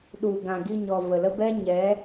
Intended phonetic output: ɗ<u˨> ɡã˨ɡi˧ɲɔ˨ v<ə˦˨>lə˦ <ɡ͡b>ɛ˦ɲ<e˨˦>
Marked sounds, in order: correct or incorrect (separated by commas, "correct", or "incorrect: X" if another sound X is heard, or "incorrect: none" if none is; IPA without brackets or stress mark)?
correct, incorrect: ə˨, incorrect: b, incorrect: ɛ˨˦